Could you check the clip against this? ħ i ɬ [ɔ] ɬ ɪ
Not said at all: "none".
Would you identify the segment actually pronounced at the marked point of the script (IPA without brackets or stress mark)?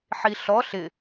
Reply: ɔ